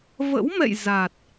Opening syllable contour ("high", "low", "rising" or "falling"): rising